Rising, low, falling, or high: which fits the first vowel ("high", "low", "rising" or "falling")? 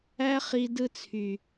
high